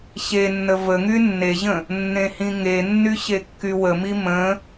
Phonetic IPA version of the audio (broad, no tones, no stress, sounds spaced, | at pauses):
ɕ e nː ə v ə ŋ y nː e ʑ ə̃ | nː ẽ h ĩ ŋ e nː y ɕ e kː y w ə m i m ə̃